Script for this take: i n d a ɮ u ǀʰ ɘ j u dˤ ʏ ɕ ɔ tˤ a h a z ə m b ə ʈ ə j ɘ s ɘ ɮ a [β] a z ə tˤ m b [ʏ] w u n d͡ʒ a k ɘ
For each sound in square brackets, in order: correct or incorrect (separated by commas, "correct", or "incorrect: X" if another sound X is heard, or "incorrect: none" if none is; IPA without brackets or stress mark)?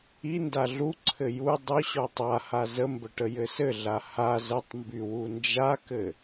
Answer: incorrect: h, incorrect: y